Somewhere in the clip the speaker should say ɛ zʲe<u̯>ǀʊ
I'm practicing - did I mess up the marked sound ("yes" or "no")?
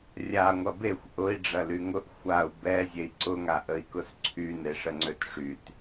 yes